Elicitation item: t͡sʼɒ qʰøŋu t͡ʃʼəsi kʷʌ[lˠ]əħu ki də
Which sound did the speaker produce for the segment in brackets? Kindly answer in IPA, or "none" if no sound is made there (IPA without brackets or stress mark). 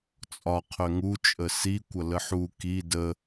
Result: l